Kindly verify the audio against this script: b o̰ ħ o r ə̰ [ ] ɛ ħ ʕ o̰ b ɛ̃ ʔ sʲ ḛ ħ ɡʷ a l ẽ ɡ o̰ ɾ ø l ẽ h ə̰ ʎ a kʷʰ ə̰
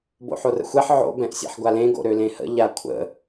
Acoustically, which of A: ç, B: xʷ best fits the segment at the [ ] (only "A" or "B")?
B